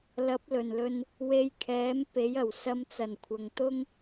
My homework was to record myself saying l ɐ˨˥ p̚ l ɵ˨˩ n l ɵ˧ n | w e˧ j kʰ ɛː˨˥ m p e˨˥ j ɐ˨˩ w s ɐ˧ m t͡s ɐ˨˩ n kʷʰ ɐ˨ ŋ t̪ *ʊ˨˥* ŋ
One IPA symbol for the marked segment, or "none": ʊ˥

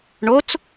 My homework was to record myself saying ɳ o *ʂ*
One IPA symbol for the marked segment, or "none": t͡s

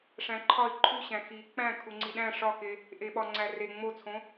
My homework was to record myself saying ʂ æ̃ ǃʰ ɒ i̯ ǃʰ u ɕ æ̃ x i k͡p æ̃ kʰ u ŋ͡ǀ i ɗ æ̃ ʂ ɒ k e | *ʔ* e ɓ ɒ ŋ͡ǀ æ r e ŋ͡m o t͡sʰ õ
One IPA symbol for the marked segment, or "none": ʔ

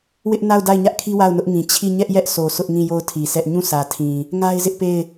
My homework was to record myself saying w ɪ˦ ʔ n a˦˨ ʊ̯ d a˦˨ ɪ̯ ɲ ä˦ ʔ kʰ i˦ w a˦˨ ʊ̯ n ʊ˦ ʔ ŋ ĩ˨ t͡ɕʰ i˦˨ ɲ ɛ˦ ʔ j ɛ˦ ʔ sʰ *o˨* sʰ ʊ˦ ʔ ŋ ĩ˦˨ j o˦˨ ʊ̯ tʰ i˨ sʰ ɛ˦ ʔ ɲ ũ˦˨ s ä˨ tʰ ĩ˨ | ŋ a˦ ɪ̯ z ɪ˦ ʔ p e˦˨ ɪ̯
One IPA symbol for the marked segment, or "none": o˨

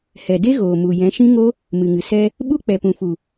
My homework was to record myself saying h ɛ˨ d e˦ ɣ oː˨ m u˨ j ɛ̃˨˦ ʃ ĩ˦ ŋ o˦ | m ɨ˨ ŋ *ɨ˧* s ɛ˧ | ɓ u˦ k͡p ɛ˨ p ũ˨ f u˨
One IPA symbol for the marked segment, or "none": ɨ˨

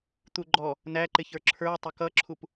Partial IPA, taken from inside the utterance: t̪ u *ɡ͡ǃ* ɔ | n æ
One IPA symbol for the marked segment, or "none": ɡ͡ǃ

